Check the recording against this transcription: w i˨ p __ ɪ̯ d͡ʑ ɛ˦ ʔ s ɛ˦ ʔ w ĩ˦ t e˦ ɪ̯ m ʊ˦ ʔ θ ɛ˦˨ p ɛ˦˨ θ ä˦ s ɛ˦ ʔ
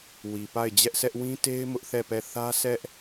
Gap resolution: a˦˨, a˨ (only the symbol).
a˦˨